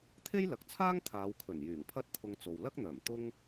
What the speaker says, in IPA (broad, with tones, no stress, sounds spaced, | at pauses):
t̪ʰ e˥ j l ɐ˨ k̚ t͡sʰ aː˥ ŋ t̪ʰ aː˨˧ w kʰ ɵ˨˩ n j yː˨˩ ŋ pʰ ɐ˥ t̚ t̪ʰ ʊ˧ ŋ t͡s o˨ w l ɐ˥ k̚ n̪ œː˨˩ m t̪ ʊ˥ ŋ